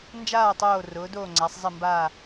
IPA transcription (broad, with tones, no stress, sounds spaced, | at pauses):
n d͡ʒ aː˥˨ tˤ oː˥˨ r ʊː˩˥ d oː˥˨ ŋ͡ǀ a˩˥ sˤ zˤ ɪ˥˨ m b aː˥˨